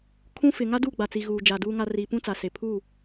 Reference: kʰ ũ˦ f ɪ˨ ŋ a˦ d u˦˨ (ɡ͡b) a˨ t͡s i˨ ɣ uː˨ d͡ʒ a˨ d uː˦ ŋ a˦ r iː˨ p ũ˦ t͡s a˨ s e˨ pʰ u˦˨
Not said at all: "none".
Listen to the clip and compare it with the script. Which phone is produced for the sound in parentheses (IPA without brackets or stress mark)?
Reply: ɡ͡b